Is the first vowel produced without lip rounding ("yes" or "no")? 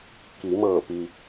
yes